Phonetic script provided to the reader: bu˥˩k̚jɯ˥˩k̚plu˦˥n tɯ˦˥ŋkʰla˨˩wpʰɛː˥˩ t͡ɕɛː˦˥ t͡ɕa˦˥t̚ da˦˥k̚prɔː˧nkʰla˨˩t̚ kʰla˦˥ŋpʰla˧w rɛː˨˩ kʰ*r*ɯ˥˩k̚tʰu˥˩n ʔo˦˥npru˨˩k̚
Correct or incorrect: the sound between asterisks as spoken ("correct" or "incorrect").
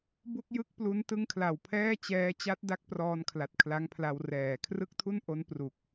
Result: correct